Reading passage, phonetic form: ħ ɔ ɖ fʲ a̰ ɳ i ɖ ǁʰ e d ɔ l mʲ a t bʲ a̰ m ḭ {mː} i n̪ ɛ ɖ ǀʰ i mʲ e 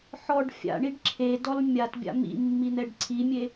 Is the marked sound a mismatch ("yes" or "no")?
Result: no